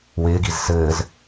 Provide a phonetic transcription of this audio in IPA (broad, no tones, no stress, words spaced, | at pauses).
wɪːɡiz sɘːz